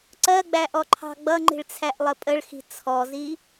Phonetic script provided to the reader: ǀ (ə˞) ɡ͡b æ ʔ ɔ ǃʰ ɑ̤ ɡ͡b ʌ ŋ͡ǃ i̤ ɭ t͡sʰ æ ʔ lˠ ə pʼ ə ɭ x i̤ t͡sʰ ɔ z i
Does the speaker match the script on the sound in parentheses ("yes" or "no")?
no